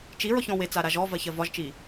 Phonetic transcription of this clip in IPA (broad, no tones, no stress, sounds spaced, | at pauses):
t͡ʃ i ɹ ɔ ç ɔ̃ w e t͡s a ɾ a ʒ ɔ v ɜ ç ɜ v ɒ ʒ t͡ʃ i